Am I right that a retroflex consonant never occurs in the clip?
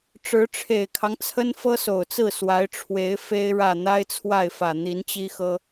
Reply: no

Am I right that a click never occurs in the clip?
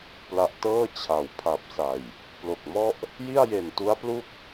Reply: yes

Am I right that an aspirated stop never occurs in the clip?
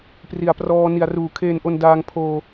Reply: no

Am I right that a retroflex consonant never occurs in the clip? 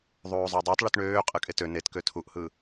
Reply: no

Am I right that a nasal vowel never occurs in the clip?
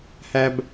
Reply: yes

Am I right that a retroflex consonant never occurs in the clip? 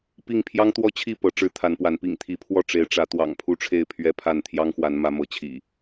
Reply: no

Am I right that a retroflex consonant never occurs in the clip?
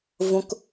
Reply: yes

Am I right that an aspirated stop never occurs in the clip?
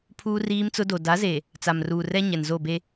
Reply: no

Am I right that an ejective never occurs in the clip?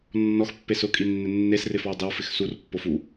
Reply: no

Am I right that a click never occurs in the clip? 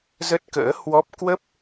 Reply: yes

